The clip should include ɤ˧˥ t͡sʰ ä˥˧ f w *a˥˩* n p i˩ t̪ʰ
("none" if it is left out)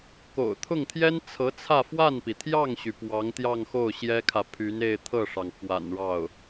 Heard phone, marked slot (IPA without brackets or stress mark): a˥˩